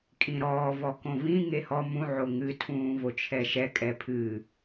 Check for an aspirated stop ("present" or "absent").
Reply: present